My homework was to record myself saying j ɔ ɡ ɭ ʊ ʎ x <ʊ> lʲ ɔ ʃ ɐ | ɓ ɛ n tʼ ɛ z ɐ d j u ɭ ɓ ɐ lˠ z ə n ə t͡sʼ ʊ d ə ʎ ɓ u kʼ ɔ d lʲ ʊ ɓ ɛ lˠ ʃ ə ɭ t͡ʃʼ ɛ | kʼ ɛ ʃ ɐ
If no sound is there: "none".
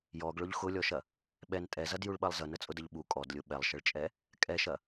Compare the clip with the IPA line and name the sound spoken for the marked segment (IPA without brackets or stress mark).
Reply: ʊ